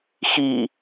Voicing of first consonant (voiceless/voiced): voiceless